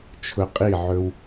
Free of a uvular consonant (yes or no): no